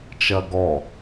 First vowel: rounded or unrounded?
unrounded